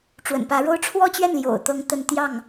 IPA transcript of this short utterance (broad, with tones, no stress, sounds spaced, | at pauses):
ʈ͡ʂ w ə̰˨˩ n p ä˧˥ ɻ o˥ ʊ̯ ʈ͡ʂʰ w ɔ˥˧ t͡ɕ ɥ ɛ˥˩ n l j o̰˨˩ ʊ̯ t̪ ɤ˧˥ ŋ t̪ ə˥˧ n t̪ j ɑ˥˩ ŋ